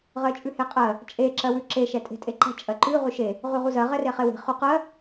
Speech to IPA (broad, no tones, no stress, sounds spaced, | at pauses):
ʁ ɜ t͡ʃʼ ʉ h e qʼ ɜ | t͡ʃʼ e ǁ ɜ w ʉ ǁ e ʃ ɛ tʼ e̤ tʼ e ǃ ɛ̤ t͡ʃʼ ɜ ǃ ʉ ʁ ʉ ʃ e | ʁ ʉ ʁ u z ɜ ʁ ɛ r e χ e w e̤ χ ʉ q ɜ